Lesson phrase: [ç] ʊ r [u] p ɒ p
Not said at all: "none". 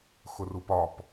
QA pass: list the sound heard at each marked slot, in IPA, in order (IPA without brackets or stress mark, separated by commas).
x, u